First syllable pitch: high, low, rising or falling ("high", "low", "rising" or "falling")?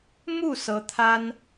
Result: falling